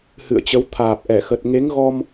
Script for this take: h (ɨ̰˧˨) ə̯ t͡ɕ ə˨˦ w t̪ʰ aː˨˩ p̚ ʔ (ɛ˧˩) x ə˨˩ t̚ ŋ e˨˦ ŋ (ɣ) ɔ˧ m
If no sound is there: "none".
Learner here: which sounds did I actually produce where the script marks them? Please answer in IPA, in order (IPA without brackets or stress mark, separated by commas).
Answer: ɨ̰˧˨, ɛ˧˩, ɣ